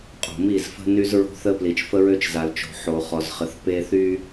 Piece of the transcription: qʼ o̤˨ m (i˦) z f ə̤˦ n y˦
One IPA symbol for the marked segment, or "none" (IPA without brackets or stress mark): i˦˨